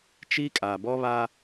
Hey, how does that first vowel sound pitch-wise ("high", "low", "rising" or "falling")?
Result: high